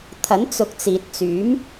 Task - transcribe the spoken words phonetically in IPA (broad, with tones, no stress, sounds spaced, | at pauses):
t̪ʰ ɐ˨˥ n t͡s ʊ˨ k̚ t͡s iː˨ t̚ t͡s yː˨˥ m